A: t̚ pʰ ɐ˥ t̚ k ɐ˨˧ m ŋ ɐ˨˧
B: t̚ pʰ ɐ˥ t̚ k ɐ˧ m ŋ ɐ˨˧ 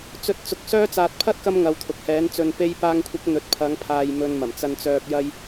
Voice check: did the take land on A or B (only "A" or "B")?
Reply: B